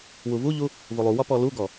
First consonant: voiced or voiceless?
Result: voiced